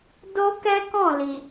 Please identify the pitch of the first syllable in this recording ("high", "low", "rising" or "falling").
high